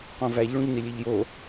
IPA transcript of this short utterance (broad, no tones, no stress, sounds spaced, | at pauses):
q õ v æ ʎ ɭ ũ ʎ n i lʲ e ʎ j o